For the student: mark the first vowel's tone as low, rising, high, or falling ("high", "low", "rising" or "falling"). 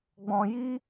low